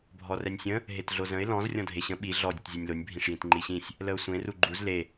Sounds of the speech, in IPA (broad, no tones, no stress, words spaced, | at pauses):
bʱɔrɛnʲsʲə̃ | ɦetɮozə̃ɪ̯ lɔ̃z rʲɔ̃dʱeɕə̃ ɓi ɮɔ dʲətzʲonʲlonʲ bʱĩʂjĩtŋ͡ǃiɕĩsʲ | ləʊ̯sʷẽ ruɡ͡ǃuz le